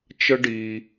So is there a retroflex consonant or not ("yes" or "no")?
yes